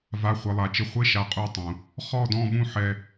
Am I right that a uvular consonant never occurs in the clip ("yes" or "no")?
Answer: no